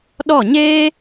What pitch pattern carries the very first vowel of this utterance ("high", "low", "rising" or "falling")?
falling